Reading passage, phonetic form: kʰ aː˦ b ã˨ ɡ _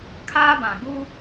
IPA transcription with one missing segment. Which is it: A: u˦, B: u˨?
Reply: A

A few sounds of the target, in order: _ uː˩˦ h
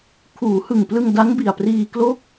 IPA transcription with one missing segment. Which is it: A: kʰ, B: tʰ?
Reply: A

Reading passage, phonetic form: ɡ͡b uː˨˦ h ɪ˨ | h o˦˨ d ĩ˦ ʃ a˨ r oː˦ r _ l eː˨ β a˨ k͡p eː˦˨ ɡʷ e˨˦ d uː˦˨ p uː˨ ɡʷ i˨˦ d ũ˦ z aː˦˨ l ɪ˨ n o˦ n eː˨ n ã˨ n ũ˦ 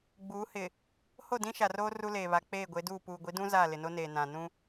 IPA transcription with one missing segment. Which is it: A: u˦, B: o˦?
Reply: A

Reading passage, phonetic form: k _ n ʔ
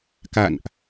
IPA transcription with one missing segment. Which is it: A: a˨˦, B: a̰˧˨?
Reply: B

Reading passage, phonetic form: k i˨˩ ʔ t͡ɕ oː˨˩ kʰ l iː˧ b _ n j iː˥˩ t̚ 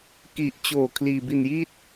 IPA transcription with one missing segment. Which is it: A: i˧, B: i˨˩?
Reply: A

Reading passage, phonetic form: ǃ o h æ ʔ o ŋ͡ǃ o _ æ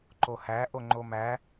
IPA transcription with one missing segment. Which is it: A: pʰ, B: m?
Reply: B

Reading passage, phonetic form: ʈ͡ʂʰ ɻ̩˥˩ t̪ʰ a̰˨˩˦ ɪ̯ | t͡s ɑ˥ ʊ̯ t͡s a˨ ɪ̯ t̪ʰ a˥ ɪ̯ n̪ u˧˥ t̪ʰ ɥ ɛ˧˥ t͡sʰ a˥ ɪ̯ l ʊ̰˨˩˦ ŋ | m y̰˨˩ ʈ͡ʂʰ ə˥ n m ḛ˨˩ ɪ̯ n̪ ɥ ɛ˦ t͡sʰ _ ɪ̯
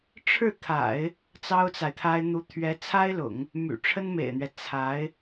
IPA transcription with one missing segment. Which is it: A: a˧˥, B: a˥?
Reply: A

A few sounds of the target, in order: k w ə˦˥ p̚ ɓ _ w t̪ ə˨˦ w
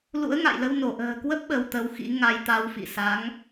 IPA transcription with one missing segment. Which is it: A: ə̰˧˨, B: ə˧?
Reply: B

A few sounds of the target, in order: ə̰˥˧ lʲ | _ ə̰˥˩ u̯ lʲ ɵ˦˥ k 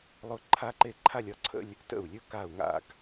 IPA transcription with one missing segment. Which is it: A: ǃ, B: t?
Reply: B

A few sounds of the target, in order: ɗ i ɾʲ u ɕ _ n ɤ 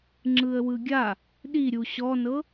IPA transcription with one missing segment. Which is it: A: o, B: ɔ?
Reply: B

